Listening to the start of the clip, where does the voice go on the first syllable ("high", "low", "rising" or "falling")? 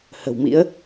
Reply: low